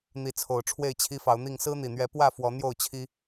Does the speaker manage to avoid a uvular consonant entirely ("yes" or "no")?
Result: yes